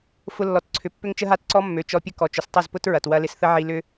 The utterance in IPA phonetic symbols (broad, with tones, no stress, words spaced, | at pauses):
fʊ˧lːɔ˨t ǀʰʏ˨pːʏ˦ŋt͡ʃə˦ɦa˦t ǀɔ˦mːø˨t͡ʃɔ˧pʲə˦ kɔ˨t͡ʃʊ˨s tˤɐ˦˨zpʊ˦tɹɐ˨t wɐ˧lɪ˧sθə˦ ʕi˧lʏ˦